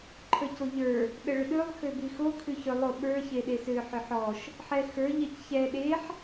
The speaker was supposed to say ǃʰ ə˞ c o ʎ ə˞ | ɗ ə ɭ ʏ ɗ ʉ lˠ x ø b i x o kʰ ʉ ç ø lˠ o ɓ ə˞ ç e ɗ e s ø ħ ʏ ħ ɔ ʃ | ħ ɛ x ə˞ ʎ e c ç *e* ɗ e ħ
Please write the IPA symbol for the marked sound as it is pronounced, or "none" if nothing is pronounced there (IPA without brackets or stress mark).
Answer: ɛ